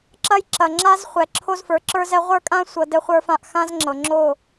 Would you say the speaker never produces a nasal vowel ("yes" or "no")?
no